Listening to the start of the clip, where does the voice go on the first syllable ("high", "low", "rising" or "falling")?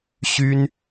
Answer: high